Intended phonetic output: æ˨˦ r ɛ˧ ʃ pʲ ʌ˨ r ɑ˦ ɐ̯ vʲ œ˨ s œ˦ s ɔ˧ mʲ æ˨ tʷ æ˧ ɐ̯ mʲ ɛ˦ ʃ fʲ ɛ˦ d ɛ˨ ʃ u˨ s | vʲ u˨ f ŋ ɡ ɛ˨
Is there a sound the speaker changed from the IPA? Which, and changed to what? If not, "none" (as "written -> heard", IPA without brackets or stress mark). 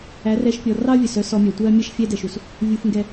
ʌ˨ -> ɔ˨